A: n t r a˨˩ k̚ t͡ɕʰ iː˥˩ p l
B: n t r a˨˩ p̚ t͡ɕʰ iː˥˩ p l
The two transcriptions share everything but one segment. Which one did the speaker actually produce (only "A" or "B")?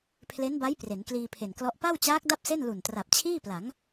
B